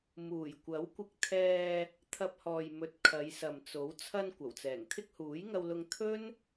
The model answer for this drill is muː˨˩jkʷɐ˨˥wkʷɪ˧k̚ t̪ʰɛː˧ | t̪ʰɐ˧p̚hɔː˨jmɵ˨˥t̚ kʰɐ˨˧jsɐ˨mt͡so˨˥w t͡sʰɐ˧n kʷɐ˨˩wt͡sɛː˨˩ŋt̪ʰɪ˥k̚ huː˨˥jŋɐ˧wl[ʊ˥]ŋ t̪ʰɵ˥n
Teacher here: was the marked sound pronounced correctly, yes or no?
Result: no